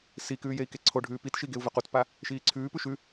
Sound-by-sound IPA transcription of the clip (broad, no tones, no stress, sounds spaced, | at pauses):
s i k ʉː j e i̯ k e ǀʰ o ɖʱ ʉː p i t ʃ i ɡ e u̯ v ɵ q u t p a | ʃ iː ǀʰ ʉː p ʉ ʃ ʉ